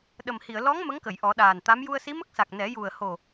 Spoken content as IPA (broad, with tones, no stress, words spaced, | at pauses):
ɗə˨˩mhi˨˩˨ə̯ lɔ˧˥ŋ mə˧˥ŋkə˨˩˨j ʔɔ˨˩˦ɗaː˨˩nt̪a˧˥m ju˧ə̯si˧˥mə˦˥k̚sa˨˩k̚ nɛ˨˩˦ju˨˩ə̯ ho˨˩